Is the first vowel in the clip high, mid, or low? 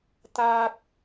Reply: low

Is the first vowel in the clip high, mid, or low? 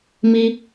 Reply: high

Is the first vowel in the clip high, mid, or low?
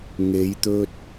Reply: mid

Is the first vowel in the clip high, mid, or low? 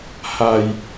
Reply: low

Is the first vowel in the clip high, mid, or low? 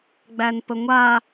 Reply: low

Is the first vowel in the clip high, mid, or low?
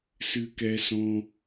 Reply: high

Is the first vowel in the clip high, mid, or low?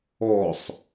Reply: mid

